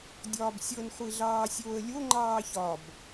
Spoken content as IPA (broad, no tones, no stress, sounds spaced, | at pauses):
dʲ ɒː b sʲ ɤ n χʷ i ɮ ɑː sʲ oː ə̯ lʲ o ŋ͡ǃ ɑː ç ɒ b